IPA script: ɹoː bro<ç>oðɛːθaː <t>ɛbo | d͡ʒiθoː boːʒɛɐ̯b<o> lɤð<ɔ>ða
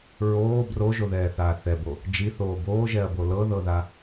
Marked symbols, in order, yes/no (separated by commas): no, no, yes, no